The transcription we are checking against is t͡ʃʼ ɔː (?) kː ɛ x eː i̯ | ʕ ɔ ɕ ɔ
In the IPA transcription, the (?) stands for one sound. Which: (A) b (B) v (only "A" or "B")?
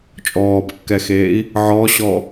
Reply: A